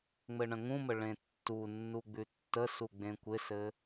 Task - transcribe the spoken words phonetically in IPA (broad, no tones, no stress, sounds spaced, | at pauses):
ŋ͡m ɘ ɳ ə̃ ŋ ũ m ə ɭ ẽ tː u nː u ɡ͡b ʉ tː ə s u ɡ͡b ẽ kʷ ɪ s ɘ